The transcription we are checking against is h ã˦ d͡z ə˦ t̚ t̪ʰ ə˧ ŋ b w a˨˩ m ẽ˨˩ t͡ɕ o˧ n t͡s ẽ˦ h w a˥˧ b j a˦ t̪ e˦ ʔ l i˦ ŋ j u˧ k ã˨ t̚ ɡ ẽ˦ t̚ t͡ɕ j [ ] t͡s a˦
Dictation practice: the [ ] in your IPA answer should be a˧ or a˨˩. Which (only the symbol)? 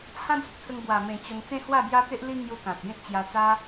a˧